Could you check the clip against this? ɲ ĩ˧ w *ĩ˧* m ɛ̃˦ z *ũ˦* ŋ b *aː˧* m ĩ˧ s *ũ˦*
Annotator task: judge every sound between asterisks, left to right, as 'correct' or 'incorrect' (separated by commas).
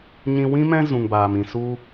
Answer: incorrect, incorrect, correct, incorrect